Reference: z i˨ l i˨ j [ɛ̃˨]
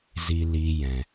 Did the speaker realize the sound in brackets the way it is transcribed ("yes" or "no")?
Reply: yes